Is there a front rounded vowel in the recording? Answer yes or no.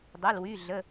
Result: yes